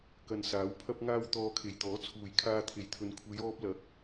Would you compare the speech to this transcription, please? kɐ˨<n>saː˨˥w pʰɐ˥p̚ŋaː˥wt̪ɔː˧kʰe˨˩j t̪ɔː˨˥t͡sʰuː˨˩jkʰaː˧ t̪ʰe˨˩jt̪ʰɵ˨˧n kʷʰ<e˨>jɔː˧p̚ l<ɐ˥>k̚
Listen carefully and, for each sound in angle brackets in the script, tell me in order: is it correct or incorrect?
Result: correct, incorrect, incorrect

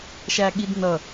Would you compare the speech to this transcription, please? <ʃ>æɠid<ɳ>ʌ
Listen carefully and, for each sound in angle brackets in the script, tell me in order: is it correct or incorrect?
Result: correct, incorrect

